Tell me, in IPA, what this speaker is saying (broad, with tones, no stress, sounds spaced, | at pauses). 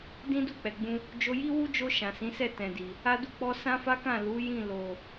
d ĩ˦ d u˦˨ k͡p ɛ˨ ɡ͡b ũ˧ | d͡ʒ o˧ j i˦ w u˦ d͡ʒ o˧ ʃ ã˨ s ĩ˨˦ s ɛ˦˨ t ɛ̃˨ d i˨ | a˦ d u˦ k͡p ɔ˦ s ã˦ f a˦ k ã˦˨ l u˨˦ j ĩ˦˨ l o˨